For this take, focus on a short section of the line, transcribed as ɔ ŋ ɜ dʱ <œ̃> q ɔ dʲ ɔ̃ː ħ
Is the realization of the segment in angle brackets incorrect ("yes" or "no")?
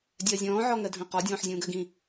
no